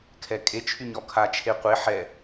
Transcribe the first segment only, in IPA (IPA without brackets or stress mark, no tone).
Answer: kʰ